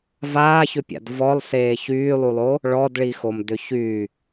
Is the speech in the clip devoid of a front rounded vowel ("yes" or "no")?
no